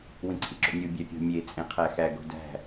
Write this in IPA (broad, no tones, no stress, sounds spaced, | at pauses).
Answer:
w ĩ ǀʰ ḭ ǁ o̰ nʲ u bʲ æ pʲ o̤ mʲ e t͡sʼ ẽ qʰ æ x æ ɡ o̤ d æ̤